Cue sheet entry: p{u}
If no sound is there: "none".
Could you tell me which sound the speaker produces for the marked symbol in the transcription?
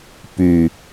y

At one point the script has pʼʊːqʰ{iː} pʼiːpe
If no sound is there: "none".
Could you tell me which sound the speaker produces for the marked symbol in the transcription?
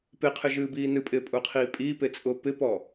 iː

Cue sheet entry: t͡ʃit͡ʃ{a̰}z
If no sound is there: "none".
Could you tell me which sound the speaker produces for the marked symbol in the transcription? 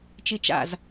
a̰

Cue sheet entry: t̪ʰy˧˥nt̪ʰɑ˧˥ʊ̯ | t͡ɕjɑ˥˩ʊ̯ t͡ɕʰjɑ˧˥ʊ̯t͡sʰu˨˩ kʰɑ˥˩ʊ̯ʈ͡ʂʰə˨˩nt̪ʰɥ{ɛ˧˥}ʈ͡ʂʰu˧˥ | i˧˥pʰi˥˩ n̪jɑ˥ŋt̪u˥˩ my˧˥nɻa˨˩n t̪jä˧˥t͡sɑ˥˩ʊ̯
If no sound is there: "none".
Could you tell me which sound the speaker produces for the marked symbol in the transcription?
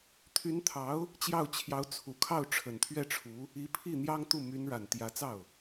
ɛ˥˩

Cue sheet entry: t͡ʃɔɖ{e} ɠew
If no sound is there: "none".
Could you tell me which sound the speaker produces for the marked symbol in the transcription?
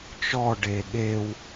e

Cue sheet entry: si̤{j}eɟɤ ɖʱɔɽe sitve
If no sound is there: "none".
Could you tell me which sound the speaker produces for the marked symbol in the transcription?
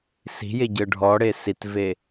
j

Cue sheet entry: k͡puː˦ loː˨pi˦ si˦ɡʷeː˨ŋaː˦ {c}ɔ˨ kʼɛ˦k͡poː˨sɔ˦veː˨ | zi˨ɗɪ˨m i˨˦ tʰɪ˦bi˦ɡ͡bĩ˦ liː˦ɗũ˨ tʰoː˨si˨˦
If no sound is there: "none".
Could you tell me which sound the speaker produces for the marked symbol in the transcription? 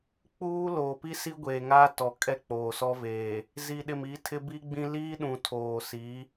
t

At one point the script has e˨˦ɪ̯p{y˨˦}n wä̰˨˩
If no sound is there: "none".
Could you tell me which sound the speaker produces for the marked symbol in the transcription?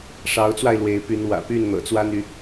y˨˦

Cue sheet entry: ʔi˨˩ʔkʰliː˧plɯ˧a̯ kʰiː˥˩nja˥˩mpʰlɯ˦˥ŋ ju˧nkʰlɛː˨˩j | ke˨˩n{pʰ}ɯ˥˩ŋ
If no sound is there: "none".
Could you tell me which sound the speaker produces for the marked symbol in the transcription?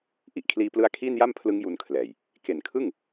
kʰ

